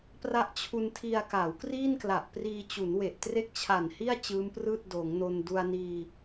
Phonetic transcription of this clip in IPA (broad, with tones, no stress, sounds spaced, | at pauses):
p r a˦˥ ʔ t͡ɕʰ u˧ n tʰ i˧ a̯ k a˩˦ w k r iː˥˩ n k l a˨˩ ʔ p r iː˧ t͡ɕ u˩˦ n w e˨˩ ʔ t r e˥˩ k̚ t͡ɕʰ a˨˩ n h i˥˩ a̯ t͡ɕ ɯː˦˥ m p r ɯː˥˩ t̚ d oː˩˦ ŋ n o˧ n d u˧ a̯ n iː˧